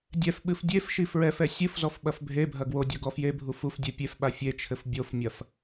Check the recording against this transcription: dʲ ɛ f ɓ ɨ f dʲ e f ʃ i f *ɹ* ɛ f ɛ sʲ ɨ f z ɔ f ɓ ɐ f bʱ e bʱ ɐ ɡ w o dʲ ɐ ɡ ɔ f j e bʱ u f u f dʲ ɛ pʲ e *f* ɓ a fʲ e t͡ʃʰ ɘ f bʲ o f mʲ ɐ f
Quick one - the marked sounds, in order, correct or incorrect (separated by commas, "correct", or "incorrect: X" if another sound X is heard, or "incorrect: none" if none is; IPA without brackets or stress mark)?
correct, correct